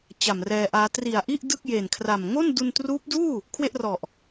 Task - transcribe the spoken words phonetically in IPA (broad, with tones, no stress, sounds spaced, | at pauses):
t͡ɕ a˨˩ m r ɛː˧ ʔ aː˦˥ t r i˨˩ a̯ ʔ i˥˩ ʔ d ɯ˥˩ k̚ j e˨˩ n kʰ r a˨˩ m ŋ o˥˩ n d u˧ n t r uː˦˥ p̚ d uː˥˩ | kʰ w e˥˩ ʔ r ɔ˨˩ ʔ